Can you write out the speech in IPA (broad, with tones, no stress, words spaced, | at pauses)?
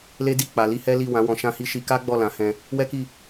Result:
le˦di˦˨ k͡pa˨ li˧hɛ˦li˦˨ wã˨˦wɔ̃˧ʃã˦hi˦ ʃi˧ka˦ɡ͡bɔ˦˨ lã˨˦hɛ̃˧ | wɛ˦ki˦˨